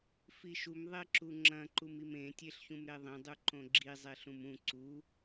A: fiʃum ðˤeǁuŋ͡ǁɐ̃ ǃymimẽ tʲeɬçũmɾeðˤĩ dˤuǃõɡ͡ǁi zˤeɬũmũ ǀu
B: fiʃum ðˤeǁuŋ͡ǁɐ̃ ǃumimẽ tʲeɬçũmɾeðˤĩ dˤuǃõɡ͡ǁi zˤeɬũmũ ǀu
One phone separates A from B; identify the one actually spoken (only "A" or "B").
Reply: B